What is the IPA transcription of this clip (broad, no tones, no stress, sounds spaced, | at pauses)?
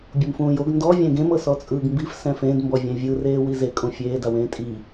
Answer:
bʲ u m f ũː j o ɡ n d ɔ vʲ ɛ̃ ɡ ẽ m ɤ s ɔ t͡sʼ ɯː ɡ m b i f s ɛ̃ f ẽ d m b ɔ vʲ ɛ̃ vʲ ɯ r eː w i z e kʼ ũ fʲ eː d a w ẽː tʼ i